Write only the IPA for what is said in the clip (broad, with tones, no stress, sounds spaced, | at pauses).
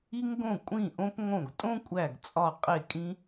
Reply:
i˧ ŋ ɡ õ˧˩ kʷʼ ĩ˧˩ ʔ õ˧ p ŋ õ˧˩ ɡ tʼ õ˥ kʷʼ æ˧˩ ɡ t͡sʼ ɒ˧˩ qʼ e˧˩ kʼ ĩ˧